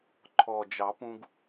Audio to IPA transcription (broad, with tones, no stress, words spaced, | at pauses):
ǃʰɔ˨˩d͡ʒɑ˨˩˦pũ˧ɡ